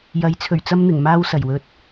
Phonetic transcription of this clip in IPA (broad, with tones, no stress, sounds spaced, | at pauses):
j ɐ˨˥ j t͡sʰ ɵ˨˩ ɥ t͡s ɐ˥ m n̪ ɪ˨˩ ŋ m aː˥ w s ɐ˨˩ j w ɵ˧ t̚